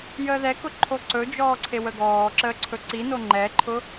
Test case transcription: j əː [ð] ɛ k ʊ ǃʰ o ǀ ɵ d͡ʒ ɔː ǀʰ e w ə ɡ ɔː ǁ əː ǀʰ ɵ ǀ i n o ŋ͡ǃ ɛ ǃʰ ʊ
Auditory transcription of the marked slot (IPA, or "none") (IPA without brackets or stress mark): ð